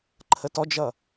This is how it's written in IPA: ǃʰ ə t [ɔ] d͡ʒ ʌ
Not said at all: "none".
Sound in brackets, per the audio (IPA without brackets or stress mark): ɔ